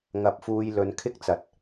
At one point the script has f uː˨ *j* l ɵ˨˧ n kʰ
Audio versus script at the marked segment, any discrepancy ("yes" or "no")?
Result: no